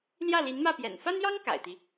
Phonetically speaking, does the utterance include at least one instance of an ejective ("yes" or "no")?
no